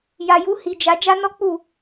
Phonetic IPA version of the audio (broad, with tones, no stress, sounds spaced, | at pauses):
j a˨ j u˨˦ h i˧ d͡ʒ a˧ d͡ʒ a˦ n ɔ˦ k͡p u˦˨